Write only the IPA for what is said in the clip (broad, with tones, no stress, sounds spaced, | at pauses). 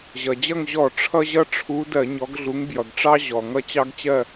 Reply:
ʑ ʌ˩ d͡ʑ ʌ˥˨ ŋ ʑ ɔ˧˩˧ ʈ͡ʂʰ ʌ˦ ʑ ʌ˦ ʈ͡ʂʰ u˨˦ d ɜ˧˩˧ ɲ ɔ˨˦ ɡ ɮ u˨˦ ŋ b j ʌ˩ ɡ ʈ͡ʂ ɑ˦ ʑ ɔ˩ ŋ ʌ˦ t͡ɕ ɑ˦ ɡ t͡ɕ ɜ˥˨